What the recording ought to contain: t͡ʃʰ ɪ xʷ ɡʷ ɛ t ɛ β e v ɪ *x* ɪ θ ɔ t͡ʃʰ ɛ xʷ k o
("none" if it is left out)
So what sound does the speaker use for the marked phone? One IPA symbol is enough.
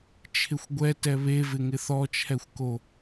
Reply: ŋ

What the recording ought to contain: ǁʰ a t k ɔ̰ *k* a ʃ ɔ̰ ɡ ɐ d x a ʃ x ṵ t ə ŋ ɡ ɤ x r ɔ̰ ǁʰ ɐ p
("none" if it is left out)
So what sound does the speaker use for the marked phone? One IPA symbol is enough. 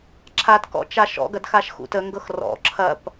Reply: t͡ʃ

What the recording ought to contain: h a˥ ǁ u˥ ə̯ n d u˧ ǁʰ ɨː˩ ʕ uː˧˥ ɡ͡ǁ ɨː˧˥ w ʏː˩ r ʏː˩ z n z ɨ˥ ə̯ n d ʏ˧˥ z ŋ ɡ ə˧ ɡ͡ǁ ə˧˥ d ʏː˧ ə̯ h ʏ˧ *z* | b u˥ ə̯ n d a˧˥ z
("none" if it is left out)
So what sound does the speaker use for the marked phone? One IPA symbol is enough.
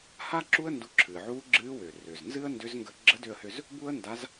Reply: z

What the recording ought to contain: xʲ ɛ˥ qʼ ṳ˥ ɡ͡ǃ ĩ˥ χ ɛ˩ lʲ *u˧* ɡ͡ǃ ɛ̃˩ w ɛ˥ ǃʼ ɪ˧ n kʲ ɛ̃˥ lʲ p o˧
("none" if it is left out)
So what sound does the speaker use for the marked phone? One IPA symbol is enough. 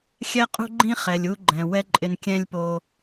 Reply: u˧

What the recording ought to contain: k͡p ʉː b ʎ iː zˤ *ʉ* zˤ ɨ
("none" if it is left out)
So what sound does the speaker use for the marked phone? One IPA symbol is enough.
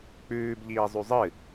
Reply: ʉ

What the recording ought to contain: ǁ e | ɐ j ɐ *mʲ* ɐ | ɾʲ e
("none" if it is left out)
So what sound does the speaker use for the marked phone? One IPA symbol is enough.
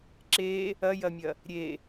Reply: mʲ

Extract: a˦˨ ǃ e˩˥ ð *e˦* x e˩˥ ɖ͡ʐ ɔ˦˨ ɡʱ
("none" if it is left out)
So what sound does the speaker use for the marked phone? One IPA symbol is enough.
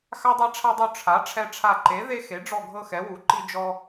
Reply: e˦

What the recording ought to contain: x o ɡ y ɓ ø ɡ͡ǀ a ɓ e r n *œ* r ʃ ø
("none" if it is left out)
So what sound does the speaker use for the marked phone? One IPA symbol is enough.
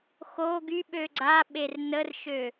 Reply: ə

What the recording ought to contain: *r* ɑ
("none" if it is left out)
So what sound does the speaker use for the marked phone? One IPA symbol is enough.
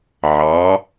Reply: ʕ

